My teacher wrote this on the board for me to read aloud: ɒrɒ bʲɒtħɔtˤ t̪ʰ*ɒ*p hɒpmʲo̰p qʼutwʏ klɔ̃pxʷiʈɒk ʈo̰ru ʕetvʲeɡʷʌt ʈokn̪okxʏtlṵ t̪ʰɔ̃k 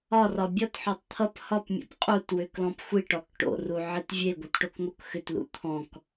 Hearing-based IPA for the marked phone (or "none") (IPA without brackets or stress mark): ʌ